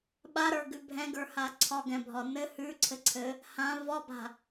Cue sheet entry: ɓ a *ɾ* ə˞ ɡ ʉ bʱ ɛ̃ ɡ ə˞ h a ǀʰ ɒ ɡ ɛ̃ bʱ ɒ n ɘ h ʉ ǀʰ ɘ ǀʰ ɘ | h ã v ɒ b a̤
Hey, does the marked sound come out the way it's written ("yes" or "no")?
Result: yes